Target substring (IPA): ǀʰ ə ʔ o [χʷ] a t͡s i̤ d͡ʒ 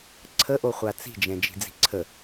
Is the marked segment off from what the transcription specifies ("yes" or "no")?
no